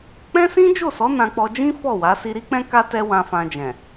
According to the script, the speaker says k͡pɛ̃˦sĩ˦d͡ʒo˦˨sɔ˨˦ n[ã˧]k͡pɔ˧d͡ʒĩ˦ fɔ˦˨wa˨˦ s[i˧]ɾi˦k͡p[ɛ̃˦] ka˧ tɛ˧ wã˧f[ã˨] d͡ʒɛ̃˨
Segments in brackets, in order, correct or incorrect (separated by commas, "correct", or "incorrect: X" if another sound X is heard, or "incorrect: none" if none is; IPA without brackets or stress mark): correct, correct, correct, incorrect: ã˧